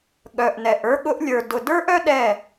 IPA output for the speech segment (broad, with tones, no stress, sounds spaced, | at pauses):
ɠ œ˨ ʔ n ɛ˨ ʔ ə˞˧ ɠ ʊ˧ ʔ lʲ ə˞˨ d ʊ˨ d ə˞˦ ʔ œ˦ ɗ ɛ˦˨